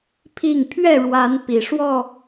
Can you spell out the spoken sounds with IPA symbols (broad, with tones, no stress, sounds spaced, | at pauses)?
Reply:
pʰ i˥˨ ŋ pʰ ɥ ɛ˥˨ ɻ w a˨˦ n p i˨˩ ʂ w ɔ˥˨